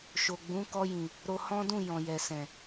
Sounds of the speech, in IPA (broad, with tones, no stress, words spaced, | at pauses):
ʃo˨ɡ͡bũ˨˦ kɔ˧jĩ˨ | ɾo˧ hɔ̃˦dũ˦˨ jɔ̃˨jɛ˨sɛ̃˨